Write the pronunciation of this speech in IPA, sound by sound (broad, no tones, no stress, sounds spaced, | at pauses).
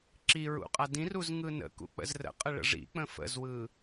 ǁ i ɹ ṵ qʼ a d ĩ r u z ŋ ɯ n ə̰ k ṵ k͡p ə̰ z r ə̰ qʼ ə ɭ ə̰ ʐ ḭ k͡p ə̃ f ə̰ z w ɯ